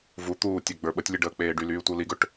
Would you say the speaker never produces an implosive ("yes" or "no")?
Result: no